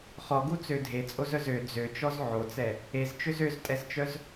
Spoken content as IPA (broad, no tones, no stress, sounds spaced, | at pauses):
χ ɔ ɡ u t͡s ø dʱ e t͡sʼ o z œ z ø d͡z ø t͡ʃ ɔ z ʕ o t͡s ɛ | e z t͡ʃ ø z ø z tʼ ɛ z t͡ʃ œ z